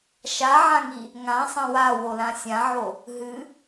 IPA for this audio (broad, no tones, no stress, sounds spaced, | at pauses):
ʃ a ʕ ã ŋ i | ŋ ã sˤ ɐ̃ w a w o l ã sʲ ã ʕ o | ɦ ɨ